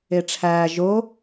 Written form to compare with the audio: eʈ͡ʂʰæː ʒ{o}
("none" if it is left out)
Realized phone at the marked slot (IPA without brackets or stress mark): o